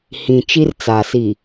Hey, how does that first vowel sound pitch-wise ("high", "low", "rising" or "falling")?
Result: low